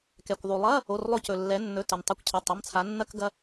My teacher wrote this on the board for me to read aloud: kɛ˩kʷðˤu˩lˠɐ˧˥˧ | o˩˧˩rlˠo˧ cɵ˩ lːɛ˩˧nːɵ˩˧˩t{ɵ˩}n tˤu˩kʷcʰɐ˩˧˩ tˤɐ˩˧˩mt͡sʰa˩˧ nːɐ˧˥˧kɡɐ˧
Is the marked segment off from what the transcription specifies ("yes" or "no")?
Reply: no